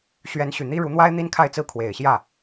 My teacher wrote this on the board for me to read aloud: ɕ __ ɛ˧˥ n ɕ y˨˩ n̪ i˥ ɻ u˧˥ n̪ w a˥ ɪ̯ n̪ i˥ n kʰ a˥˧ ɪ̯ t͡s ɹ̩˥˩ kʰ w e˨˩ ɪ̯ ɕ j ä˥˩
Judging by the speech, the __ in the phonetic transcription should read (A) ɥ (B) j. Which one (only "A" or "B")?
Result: A